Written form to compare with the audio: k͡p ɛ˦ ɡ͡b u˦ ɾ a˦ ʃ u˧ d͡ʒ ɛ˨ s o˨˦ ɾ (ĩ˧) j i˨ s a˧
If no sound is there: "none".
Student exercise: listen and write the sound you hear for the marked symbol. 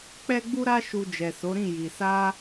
ĩ˦˨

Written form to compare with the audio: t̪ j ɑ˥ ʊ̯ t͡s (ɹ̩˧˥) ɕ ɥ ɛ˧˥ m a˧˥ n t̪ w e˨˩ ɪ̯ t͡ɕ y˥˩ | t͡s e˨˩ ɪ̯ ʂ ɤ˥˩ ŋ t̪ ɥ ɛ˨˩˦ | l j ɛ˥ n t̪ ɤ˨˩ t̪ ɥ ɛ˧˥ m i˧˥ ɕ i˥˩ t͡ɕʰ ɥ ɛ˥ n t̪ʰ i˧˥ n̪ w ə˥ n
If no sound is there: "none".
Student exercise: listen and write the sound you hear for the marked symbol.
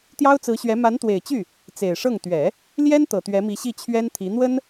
ɹ̩˧˥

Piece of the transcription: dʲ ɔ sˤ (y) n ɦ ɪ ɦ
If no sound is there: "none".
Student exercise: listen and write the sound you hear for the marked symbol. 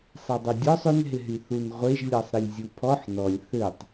ʏ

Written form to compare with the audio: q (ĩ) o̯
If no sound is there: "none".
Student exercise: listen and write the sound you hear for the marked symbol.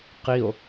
i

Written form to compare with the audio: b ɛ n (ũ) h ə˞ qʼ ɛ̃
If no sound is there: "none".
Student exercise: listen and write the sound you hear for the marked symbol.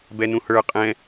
ũ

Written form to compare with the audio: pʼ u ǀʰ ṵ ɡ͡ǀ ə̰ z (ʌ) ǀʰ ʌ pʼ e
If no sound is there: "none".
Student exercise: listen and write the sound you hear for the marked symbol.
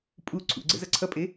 ʌ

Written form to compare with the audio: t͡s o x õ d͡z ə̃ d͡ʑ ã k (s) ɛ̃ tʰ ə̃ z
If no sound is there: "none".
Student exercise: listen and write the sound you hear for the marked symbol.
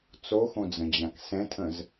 s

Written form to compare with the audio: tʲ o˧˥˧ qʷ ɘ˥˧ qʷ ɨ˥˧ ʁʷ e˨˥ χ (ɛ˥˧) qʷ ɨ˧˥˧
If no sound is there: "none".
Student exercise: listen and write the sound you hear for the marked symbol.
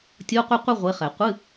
ɛ˨˩˦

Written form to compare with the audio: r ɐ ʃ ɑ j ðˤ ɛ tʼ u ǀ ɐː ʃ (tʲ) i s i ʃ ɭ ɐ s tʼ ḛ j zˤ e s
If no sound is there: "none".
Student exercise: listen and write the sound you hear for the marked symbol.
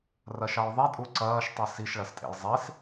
tˤ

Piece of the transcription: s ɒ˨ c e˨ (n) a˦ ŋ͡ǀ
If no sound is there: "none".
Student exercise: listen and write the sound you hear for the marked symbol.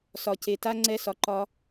t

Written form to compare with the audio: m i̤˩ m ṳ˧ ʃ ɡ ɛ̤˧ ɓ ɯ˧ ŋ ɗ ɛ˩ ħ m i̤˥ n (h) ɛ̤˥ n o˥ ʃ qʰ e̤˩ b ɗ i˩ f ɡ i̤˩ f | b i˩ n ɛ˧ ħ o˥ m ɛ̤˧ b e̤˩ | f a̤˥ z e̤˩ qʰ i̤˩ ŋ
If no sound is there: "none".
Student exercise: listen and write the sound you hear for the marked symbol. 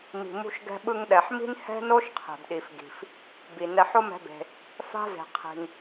h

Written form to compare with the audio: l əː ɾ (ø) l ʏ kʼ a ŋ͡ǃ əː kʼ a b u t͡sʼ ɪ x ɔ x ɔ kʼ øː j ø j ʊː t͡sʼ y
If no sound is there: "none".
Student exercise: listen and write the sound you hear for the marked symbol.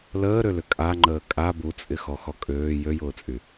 ø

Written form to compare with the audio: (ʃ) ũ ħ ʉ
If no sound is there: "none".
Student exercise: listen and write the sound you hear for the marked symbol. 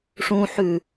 ʂ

